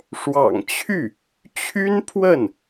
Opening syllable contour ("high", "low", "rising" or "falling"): low